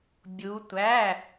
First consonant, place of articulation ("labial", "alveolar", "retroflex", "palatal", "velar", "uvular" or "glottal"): labial